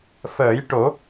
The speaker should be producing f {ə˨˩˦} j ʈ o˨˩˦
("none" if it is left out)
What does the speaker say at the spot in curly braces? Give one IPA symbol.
əː˨˩˦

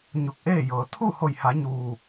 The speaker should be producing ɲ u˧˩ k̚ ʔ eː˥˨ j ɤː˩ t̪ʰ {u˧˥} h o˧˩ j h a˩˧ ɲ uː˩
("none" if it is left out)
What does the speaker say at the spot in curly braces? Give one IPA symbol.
u˥˨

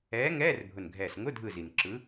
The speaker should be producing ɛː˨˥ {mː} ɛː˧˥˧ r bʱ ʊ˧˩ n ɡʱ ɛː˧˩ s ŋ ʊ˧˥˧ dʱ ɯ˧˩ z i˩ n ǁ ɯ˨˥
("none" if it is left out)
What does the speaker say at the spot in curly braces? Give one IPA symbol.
ŋ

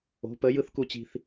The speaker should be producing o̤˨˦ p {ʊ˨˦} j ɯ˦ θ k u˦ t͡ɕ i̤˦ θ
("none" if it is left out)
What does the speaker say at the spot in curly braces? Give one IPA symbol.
ə˨˦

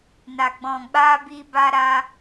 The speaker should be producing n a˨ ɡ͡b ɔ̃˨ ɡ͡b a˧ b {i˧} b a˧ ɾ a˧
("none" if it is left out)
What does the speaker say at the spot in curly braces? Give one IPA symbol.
i˧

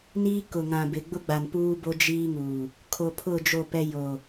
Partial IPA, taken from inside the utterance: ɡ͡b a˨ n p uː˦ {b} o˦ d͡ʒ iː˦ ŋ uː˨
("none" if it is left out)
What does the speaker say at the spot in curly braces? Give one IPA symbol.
b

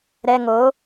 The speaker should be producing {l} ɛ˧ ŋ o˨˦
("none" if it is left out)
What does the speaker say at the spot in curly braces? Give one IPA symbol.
ɾ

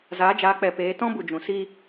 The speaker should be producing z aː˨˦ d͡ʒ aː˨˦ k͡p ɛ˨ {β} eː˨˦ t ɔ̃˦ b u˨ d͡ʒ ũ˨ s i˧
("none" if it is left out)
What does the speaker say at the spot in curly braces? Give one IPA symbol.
p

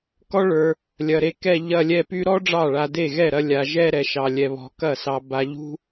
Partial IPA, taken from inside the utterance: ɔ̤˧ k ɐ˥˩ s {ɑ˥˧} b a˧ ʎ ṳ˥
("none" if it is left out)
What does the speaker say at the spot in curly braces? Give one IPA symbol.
ɑ˧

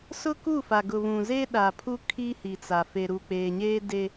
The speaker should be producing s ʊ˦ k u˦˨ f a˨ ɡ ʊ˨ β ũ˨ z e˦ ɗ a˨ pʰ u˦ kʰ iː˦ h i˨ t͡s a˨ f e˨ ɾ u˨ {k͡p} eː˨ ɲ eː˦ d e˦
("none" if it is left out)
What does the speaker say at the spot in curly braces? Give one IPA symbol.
k͡p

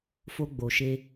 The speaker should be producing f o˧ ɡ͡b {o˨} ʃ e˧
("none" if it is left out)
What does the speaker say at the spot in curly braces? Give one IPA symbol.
o˨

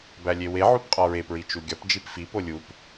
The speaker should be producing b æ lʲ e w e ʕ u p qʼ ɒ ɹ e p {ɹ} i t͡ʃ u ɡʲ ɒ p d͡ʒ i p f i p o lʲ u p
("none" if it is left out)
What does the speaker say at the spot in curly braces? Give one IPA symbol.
ɹ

